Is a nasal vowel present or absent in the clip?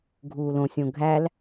present